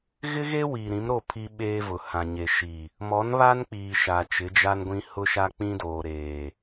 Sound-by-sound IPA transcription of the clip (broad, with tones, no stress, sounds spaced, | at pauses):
ɣ ɪ˦ ɣ e˦ w iː˨ ɾ ĩ˨˦ m ɾ o˦˨ pʰ i˦ ɓ eː˦ v ʊ˨ h ã˨ ɲ e˨ ʃ iː˨ | m ɔ˨˦ n β a˦ n k͡p iː˨ ʃ a˨ t͡ʃ ɪ˨˦ d͡ʒ a˦ n ɡʷ ĩ˦ h ʊ˦ ʃ a˦ k͡p ĩ˦ d oː˨ ɾ eː˨